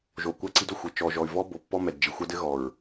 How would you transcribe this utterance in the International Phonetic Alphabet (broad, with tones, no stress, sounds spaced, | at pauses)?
ʒ o˨ kʷ a˦ ǀ i˦ d o˨ xʷ ɘ˨ t͡ʃ ɔ˨ ʒ ɔ˨ y̯ v ɔ˦ b o˨ pː ɔ˦ m ɛ˨ d d͡ʒ i˨ xʷ a˦ d ɘ˦ ɣ ɔ˨ ɹ